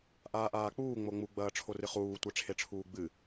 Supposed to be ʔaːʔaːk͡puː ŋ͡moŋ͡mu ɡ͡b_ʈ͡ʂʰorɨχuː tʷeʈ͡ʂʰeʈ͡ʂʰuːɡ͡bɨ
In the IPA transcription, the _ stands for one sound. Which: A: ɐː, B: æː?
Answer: A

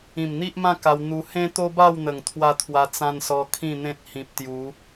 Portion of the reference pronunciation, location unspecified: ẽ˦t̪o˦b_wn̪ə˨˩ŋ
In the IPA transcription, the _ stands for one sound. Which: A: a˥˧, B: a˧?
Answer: A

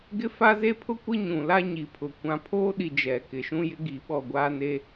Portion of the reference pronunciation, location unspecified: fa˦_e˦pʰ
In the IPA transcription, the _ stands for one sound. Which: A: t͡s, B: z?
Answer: B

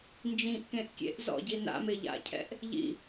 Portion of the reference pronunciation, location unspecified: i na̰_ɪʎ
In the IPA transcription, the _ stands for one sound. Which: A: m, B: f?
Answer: A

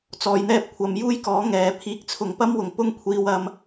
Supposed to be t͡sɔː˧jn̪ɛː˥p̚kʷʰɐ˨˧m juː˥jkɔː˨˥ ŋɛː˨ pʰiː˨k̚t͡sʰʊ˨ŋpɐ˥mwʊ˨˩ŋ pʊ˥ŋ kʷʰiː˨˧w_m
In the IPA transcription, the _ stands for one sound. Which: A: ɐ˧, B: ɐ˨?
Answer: A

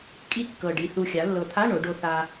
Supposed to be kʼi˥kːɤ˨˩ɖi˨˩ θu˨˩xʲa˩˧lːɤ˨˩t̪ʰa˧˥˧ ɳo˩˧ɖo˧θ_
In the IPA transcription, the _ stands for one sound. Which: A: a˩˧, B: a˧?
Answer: B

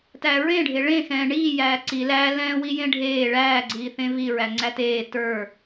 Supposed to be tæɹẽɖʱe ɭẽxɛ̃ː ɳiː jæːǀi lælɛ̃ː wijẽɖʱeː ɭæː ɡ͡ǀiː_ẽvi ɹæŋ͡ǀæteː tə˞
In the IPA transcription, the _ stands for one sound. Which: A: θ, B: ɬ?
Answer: A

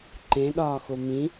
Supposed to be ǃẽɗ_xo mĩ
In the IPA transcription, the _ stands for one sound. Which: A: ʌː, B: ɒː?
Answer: B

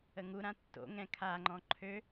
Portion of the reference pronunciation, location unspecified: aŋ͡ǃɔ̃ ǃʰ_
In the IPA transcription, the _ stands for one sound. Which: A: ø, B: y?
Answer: A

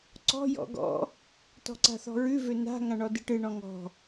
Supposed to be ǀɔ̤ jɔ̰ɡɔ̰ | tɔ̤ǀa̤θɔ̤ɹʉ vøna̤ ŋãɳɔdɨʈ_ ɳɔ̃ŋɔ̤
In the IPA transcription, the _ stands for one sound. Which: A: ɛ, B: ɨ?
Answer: B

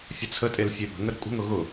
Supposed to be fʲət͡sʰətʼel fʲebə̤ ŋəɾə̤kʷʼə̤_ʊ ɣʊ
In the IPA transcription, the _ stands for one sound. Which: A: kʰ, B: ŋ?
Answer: B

